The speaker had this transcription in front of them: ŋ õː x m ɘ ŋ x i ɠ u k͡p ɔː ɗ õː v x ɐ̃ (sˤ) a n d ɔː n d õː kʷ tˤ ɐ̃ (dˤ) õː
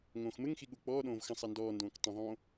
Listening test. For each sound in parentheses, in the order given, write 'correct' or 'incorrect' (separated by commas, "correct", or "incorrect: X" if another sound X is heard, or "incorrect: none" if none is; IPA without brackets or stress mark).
correct, incorrect: ðˤ